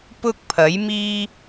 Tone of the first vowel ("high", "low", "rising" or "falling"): high